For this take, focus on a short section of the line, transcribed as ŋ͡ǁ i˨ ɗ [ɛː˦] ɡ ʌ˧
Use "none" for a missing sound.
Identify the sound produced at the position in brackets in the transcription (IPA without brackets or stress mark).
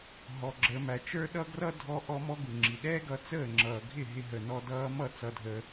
ɛː˦